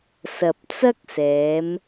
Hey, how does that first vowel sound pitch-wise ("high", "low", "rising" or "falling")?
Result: low